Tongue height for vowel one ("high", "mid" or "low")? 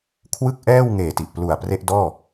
high